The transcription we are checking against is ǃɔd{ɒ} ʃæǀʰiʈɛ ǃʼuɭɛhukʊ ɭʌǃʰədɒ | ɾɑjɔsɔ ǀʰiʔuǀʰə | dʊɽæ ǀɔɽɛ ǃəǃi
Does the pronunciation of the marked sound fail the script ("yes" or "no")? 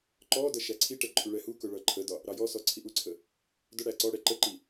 yes